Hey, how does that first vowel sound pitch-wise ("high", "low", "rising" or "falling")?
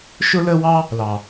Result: high